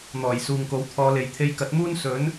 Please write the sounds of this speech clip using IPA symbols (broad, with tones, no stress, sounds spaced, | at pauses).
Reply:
n̪ ɔː˨˩ j s uː˨ ŋ k o˨˥ w t̪ʰ ɔː˨˧ l e˨ j t̪ʰ e˧ j k ɐ˨˥ t̚ m uː˥ n s ɵ˨˥ n